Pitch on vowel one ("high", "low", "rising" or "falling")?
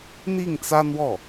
falling